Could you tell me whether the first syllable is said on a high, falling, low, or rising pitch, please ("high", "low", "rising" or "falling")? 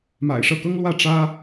low